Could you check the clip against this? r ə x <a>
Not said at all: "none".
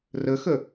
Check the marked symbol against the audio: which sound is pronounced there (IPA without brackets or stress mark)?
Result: ə